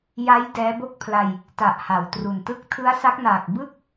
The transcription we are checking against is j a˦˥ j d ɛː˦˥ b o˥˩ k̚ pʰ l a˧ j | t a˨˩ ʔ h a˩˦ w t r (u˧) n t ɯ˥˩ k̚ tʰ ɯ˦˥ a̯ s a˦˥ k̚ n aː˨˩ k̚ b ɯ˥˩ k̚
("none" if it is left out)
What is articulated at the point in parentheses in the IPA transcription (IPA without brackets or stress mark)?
u˨˩